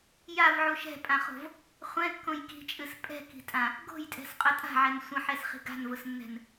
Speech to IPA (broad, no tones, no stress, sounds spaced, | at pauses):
j a v ʕ u ʃ ɛ̤ pʼ ã χ o̤ v | χʷ ɛ̃ kː õ j k i̤ t͡ʃʼ ɨ s pʼ ɛ̤ k i̤ tʼ ã | ɡ o̤ j tʼ ɛ̤ s qʼ ʊ tʼ a̤ ʕ ɛ n sʷ ə̃ ħ ɛ s χ i̤ ɡ a̤ n v ʊ s nː ɛ̤ n